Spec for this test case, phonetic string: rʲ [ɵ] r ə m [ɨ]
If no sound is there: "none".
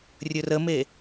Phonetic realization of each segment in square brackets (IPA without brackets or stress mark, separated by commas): ɵ, e